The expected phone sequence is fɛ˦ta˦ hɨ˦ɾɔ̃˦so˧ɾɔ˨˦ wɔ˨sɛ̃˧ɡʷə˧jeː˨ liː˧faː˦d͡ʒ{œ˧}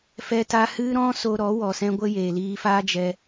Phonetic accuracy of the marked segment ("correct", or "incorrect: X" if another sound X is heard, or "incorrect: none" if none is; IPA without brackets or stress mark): incorrect: ɛ˧